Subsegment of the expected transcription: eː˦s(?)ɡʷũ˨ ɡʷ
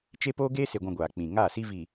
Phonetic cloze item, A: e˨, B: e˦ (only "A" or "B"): A